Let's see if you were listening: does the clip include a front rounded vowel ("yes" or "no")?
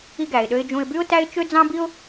yes